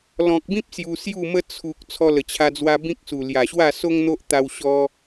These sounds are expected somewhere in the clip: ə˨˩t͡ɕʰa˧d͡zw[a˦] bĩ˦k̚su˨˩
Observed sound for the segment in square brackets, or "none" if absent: a˧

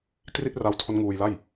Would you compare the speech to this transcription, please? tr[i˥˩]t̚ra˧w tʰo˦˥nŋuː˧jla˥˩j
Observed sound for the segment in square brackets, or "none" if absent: i˥˩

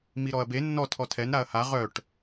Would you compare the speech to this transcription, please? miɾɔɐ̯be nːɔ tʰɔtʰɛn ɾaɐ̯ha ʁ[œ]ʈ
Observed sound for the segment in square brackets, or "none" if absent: œ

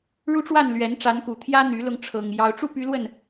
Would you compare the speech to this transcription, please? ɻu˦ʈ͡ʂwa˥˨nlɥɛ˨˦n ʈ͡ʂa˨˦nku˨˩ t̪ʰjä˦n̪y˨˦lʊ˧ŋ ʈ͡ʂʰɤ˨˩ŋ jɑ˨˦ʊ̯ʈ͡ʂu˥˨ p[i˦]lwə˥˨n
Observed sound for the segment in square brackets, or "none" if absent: y˦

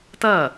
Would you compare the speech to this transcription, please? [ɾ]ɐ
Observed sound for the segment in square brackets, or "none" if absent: t̪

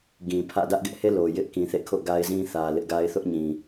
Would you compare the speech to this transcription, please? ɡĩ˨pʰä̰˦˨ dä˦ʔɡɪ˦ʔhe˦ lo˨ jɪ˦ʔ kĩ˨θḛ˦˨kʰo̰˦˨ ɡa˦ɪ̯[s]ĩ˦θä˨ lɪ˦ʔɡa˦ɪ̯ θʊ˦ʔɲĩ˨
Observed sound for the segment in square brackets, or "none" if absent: z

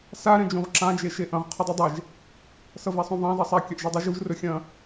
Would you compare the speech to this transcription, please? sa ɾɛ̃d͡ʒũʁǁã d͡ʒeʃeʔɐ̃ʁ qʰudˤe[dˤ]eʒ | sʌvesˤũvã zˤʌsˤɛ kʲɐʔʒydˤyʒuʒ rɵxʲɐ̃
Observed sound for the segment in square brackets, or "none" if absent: dˤ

